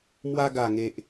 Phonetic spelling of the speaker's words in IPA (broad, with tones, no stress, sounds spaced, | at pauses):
m w a˧ ɡ a˨˩ ŋ e˨ ʔ